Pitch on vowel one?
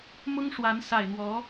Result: high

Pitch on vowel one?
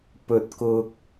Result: low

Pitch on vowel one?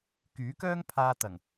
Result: rising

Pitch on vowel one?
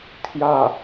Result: falling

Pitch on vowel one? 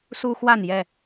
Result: high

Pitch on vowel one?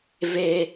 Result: low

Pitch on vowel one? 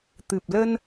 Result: low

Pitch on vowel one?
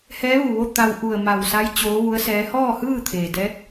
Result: rising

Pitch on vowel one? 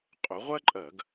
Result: rising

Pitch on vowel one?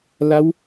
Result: rising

